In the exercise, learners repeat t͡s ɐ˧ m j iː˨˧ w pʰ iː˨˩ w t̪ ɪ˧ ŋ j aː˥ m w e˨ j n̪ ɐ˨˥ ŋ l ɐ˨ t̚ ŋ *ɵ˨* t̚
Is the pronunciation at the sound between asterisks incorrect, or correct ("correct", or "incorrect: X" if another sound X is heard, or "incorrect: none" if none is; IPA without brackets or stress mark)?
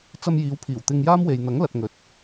incorrect: ɵ˨˥